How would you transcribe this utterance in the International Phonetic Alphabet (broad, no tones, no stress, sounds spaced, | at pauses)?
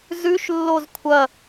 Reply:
z ʉ ʃ lː o z kʷʰ ɐ